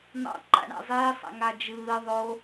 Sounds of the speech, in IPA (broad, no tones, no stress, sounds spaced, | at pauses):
n̪ ɑ̰ ǃ a̰ ɳ a̰ zˤ eː sˤ a̰ ŋ a d͡ʒ ɯː ðˤ o